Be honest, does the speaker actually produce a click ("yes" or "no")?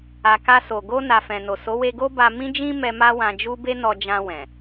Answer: no